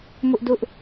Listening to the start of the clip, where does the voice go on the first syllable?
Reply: high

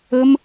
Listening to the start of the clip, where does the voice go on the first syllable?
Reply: high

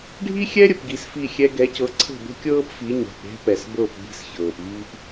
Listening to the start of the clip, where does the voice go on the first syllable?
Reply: high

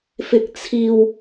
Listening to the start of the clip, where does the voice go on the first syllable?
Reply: high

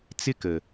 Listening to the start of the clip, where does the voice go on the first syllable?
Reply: high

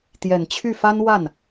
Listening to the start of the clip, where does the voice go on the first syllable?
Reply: low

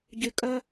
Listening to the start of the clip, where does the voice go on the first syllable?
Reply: low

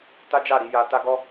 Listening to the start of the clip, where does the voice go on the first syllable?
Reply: high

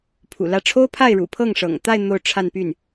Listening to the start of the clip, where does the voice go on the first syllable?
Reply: low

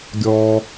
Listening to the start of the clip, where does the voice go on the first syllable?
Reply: low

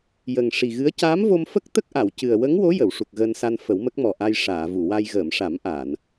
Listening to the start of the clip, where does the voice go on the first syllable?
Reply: low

